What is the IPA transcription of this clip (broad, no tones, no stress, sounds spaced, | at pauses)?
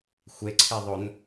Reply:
xʷ e ǀʰ e ðˤ o n